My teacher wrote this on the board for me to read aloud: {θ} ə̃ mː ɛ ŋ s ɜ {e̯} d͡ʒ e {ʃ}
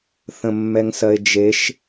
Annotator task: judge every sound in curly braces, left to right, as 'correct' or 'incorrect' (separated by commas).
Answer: correct, correct, correct